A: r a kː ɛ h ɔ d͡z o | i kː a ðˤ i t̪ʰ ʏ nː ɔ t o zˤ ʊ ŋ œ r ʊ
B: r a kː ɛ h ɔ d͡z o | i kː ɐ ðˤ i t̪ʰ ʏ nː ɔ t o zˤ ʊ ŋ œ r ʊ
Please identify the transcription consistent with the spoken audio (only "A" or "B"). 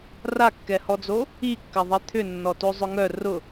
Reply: B